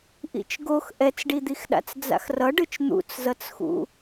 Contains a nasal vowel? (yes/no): no